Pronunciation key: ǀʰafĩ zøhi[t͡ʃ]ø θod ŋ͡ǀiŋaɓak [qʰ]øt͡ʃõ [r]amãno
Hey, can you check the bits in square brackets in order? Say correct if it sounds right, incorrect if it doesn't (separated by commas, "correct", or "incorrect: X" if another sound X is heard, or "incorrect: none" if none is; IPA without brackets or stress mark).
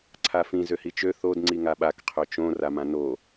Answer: correct, correct, correct